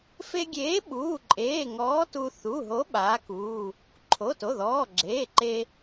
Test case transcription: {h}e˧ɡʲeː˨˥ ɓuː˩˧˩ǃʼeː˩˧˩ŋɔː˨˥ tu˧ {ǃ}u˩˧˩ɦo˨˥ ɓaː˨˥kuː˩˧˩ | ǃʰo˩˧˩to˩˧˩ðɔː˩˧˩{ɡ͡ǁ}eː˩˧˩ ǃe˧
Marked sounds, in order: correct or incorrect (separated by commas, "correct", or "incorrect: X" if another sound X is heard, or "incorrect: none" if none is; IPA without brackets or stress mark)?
incorrect: f, incorrect: θ, correct